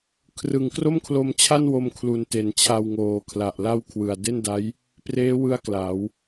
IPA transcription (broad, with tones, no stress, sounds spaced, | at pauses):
kʰ r ɯ˨˩ ŋ k r o˥˩ m kʰ l o˧ m t͡ɕʰ a˥˩ n w o˧ m kʰ l u˨˩ n t e˩˦ n t͡ɕʰ a˧ w ŋ oː˩˦ kʰ l a˨˩ ʔ l a˥˩ w kʰ w ɯ˨˩ a̯ d e˥˩ n d a˦˥ j | p r eː˦˥ w ɯ˦˥ a̯ k l a˩˦ w